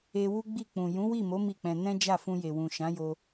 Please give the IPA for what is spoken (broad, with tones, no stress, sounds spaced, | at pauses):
e˧ w u˦ ɡ͡b i˦˨ k͡p ũ˨ j ũ˨˦ w i˦˨ m o˨˦ m i˦˨ k͡p ɛ̃˧ n ɛ̃˦ d͡ʒ a˦˨ f ũ˧ j e˨ w ũ˨ ʃ ã˨˦ j o˧